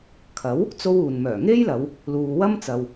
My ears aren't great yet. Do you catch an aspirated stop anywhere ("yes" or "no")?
yes